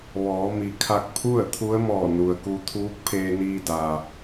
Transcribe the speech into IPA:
ʋ ɔː˩˧ m i˩ kʰ a˧ k̚ pʰ u˥˨ ə̯ t̪ʰ u˧˥ ə̯ m ɔː˧˩ n u˩ ə̯ k u˧ t̪ʰ uː˧˥ k̚ pʰ eː˧ n iː˧ d a˩

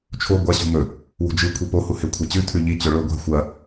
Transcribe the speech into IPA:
t͡ʃʰ o ɡʷ a ɕ ṳ m ɵ | w ṳ d͡ʒ ɨ kʷʰ i p o h u h e kʷʰ e t͡ɕ ʉ tʰ ʉ ʎ i t͡ɕ ɵ ɭ ɵ ɡʷ a̤ xʷ ɐ

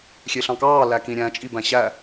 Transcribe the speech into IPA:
xʲ e ɬ ɑ̃ k ɑː l æ k ĩ ɾʲ æ̃ t͡ʃʼ i b æ̃ ɕ æ

